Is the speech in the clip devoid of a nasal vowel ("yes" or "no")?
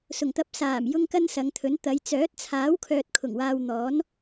yes